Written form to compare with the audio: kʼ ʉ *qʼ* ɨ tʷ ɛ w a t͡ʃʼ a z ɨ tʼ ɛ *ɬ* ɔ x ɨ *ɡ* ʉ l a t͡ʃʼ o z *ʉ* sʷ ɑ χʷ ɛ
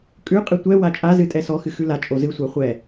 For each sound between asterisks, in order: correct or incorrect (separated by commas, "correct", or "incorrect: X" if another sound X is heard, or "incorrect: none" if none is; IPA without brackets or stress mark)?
correct, incorrect: s, incorrect: x, incorrect: ɨ